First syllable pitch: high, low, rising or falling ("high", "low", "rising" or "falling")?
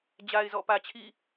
low